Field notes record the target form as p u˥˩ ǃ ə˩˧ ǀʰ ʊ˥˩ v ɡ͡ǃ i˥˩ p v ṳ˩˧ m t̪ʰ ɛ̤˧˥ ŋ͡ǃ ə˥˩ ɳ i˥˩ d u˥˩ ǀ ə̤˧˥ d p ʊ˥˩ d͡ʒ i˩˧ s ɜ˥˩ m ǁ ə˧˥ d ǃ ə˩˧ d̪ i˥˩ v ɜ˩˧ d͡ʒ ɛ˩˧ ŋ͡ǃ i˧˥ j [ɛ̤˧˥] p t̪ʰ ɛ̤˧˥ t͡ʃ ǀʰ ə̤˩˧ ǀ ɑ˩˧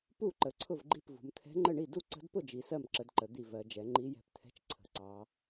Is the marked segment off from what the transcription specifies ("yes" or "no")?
no